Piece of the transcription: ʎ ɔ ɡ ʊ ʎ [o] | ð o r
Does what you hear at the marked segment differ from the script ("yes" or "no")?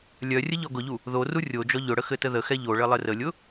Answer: yes